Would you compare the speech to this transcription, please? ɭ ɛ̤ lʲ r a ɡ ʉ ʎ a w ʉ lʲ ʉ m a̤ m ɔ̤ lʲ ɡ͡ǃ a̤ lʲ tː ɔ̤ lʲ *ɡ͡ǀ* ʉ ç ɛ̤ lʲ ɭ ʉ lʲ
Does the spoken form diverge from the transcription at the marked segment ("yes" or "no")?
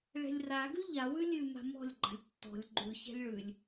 yes